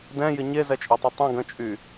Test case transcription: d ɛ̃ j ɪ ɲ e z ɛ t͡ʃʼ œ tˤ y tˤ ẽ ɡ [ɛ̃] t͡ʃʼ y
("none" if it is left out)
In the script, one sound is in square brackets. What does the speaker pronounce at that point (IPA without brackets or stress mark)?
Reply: ə̃